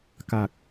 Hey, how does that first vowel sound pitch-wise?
low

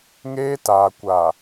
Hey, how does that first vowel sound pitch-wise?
high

